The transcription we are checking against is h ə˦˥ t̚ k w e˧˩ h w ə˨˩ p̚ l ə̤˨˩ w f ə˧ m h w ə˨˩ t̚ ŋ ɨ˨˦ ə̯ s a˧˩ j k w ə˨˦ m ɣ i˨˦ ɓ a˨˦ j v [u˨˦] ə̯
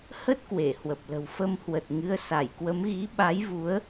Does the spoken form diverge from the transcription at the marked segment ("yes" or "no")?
no